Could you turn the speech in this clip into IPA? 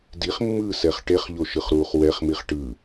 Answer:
d i χ mː ɯː s ɛ χ ʈ e χ ʎ o ʃ ɯ χ ɾ uː χ w ɛ χ m i χ ʈ ɯ

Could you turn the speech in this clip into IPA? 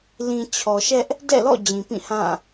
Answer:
l ĩ˨ t͡ɕʰ ɔ˨ ʃ ɛ˦ ʔ | d ɛ̰˦˨ l ɔ̰˦˨ d͡ʑ ĩ˨ p ĩ˦˨ h ã˦˨

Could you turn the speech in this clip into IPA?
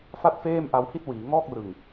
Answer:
f a˥˩ t̚ f eː˥˩ m ʔ a˧ w h i˥˩ t̚ w iː˩˦ ŋ ɔː˥˩ k̚ r ɯ˨˩ ŋ

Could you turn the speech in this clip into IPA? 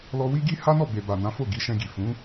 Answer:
l ɔ˧ w i˦ ɡ i˦ h a˦ n ɔ˦˨ b e˧ b a˨ n ã˨˦ f o˦˨ ɡ i˨˦ ʃ ɛ̃˧ ɡ i˨ f ũ˨˦

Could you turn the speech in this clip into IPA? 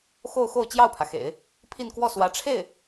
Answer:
x o˥˧ ʊ̯ x o˥˧ ʊ̯ t͡ɕ j ɑ˥˩ ʊ̯ pʰ ä˩ x ḛ˨˩˦ ɪ̯ | pʰ i˥˧ n k w ɔ˥˩ s w ä˧˥ ʈ͡ʂʰ e˥˩ ɪ̯

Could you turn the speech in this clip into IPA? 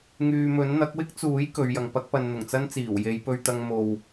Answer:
ŋ yː˨ m ɵ˨˥ n n̪ ɐ˨˥ k̚ w ɪ˥ k̚ t͡s uː˨˥ j k ɵ˨˧ ɥ j ɐ˨ ŋ p ɐ˥ k̚ p ɐ˧ n n̪ ʊ˨˩ ŋ t͡s ɐ˥ n t͡s iː˨˩ w j e˨˧ j p ɵ˧ ɥ t̪ ɐ˧ ŋ m o˨ w

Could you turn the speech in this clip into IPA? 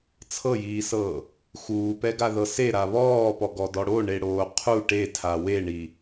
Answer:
t͡sʰ ɤ j iː s ɤː | x uː p ɛ ɡ a ð ɤ s e ɾ a β ɔː p ɔ ɡ ɔ d ɔ ɽ o ɳ e ɽ oː qʰ u ʈ e tʰ a w e ɳ i

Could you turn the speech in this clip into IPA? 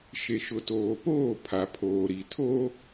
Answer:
ʃ e˨ ʃ ʊ˨ t oː˨ p oː˦˨ pʰ a˨ pʰ oː˨ ɾ i˨ tʰ o˦

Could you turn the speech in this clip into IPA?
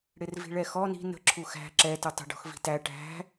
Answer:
ɽ ɪ r v i̤ ɭ ɛ x ɔ n i̤ n ə̤ ǁʰ u x æ̤ ǁ ɛ t ʊ tˤ ə̤ ɖ ɔ̤ x v i̤ t æ ʈ æ̤

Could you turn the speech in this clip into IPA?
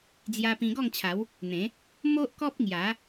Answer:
d͡z j a˦ p ĩ˧ ɡ ɔ˥˧ ŋ t͡ɕʰ a˨˦ w | n̪ ẽ˨˦ | m o˦ ʔ k ɔ˦ p̚ ŋ j a˨˦

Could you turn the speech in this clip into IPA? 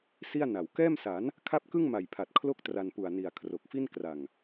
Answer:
s i˥˩ a̯ n a˨˩ w k ɛː˥˩ m s a˩˦ n | kʰ a˦˥ p̚ k ɯ˥˩ ŋ m a˨˩ j pʰ a˨˩ t̚ kʰ l o˥˩ k̚ t r a˧ n p u˨˩ a̯ n i˨˩ a̯ kʰ r o˨˩ k̚ f i˥˩ n k r a˨˩ ŋ

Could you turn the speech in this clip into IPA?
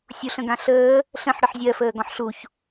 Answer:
sʲ u ɬ ə̃ ɡ ã ɬ əː | ɬ ə̃ ħ ɽ ə ħ zʲ ɜ f əː ɡ ɔ̃ ħ ɬ u ç

